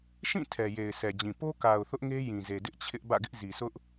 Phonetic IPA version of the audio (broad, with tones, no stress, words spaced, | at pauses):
ʃĩ˦˨ tʰɛ˨je˨ɪ̯sɛ˨d͡ʑĩ˨ po˦ka˨ʊ̯ θʊ˦ʔŋe˦ jĩ˨ze˨ dɪ˦ʔt͡ɕʰɪ˦ʔ bä̰˦˨ɡɪ˦ʔzi˨sʊ˦ʔ